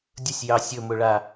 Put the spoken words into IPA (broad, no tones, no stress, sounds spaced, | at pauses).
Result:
dʲ ə sʲ j ɑ sʲ ɵ m ɵ ɭ a